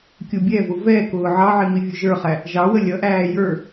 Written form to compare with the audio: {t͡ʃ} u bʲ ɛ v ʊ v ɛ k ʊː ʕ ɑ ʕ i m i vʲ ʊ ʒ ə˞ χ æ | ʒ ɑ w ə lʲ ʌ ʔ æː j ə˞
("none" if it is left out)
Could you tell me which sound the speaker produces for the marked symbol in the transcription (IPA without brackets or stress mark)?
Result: kʲ